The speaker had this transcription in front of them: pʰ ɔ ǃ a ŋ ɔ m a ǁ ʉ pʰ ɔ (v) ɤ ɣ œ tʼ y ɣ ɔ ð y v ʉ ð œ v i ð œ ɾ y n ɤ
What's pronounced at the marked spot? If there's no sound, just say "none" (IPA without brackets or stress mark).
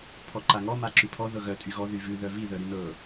ð